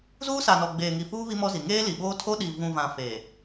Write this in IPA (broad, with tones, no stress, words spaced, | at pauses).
zuː˦sa˨nɔ˨ɡ͡beː˨ ŋi˨fuː˦ βi˦mɔ˦zi˨ ŋeː˦li˨ɓoː˦ tʰo˦ɗi˨ vũ˨vã˨ fe˨